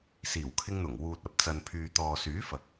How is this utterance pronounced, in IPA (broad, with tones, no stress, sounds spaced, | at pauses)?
s iː˨˩ w kʰ ɪ˧ ŋ n̪ ʊ˨˩ ŋ w uː˨ t̚ ɐ˨˥ p̚ t͡s ɐ˨ n pʰ yː˨ t̪ ɔː˨ s yː˨˥ f ɐ˨ k̚